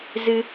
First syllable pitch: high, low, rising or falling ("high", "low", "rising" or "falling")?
high